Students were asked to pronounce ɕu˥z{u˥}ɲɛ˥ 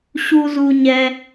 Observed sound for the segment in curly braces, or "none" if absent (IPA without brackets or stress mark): u˥